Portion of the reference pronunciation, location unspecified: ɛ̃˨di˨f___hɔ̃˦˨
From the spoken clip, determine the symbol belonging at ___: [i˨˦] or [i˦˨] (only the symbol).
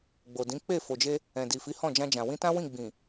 i˨˦